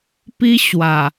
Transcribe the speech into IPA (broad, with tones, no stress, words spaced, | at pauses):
pi˦ ɕwa˨˩